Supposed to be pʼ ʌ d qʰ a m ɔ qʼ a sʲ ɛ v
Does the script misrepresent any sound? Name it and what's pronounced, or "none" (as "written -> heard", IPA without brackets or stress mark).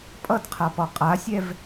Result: m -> p